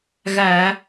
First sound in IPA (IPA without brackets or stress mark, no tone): ɣ